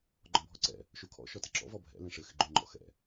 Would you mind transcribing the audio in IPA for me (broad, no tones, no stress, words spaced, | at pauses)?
ɡ͡ǃɔ̃bʱɔǀɛ̰ | ʃukʰɔ̰ ʃɔtɪǁɔ̰ vɔbʱɛ̰ lɛ̃ʂɘ xɪɡ͡ǃuŋ͡ǃɔ̰ xɛ̰